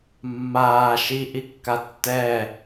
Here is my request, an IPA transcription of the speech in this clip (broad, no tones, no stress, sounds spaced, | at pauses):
mː aː ʃ i ʔ i kː a tː ɛ